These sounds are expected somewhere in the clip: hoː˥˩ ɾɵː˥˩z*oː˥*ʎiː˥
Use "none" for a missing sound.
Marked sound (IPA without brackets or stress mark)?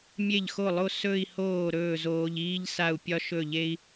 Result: oː˧